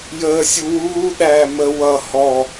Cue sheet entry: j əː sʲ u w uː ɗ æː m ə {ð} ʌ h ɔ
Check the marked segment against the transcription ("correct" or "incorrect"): incorrect